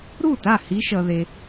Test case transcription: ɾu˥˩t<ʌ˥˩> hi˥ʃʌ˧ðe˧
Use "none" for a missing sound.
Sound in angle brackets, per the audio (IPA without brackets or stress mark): a˥˩